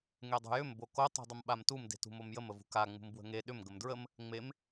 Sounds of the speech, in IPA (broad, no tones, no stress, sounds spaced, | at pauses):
ŋ e dˤ ṳ j ʏ m b o k o tˤ ṳ dˤ ə m ɓ a m t u m d e̤ t ṳ m o m j ə m ə v ṳ k a ŋ͡m ṳ m b w ə̤ ŋ e ɗ ʏ m ɡ ə m d ɹ ə m | ŋ͡m e m